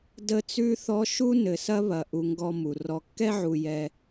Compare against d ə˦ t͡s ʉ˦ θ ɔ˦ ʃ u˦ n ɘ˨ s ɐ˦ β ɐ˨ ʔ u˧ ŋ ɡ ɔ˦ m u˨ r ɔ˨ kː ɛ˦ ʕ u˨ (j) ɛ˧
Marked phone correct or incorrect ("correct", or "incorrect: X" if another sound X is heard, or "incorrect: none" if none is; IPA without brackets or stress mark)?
correct